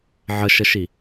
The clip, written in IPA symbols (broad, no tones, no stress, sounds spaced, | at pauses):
ʕ ə ʃ ə ʃ i